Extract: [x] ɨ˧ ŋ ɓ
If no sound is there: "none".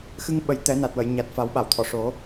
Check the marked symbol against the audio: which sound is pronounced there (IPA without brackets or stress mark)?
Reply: x